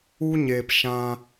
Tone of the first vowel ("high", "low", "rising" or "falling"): high